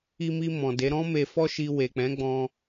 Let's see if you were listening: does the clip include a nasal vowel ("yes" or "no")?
yes